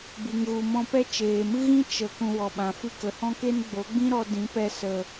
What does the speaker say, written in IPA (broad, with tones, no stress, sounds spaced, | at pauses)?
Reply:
b ɨ˨ ŋ ɣ u˨ m ɔ̃˧ p ɛ˦ t͡ʃ eː˨ m ɨ˦ ɣ ĩ˦ t͡ʃ ə˨ k ũ˧ w ɔ˨ ɓ ã˨ f ɨ˦ k ə˨ h ɔ̃˦ k e˦ n ɡ͡b o˨˦ ɡ͡b ĩ˦ ɾ ɔ˧ d ĩ˨˦ p ɛ˧ s ə˨